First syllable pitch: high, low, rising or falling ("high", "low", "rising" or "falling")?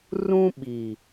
high